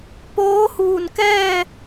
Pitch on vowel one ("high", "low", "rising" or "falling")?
rising